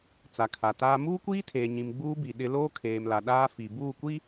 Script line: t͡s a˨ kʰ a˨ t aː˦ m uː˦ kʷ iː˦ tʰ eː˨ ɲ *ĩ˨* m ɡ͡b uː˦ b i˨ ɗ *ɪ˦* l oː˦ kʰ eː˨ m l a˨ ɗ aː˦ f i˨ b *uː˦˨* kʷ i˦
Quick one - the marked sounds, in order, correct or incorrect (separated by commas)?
correct, correct, correct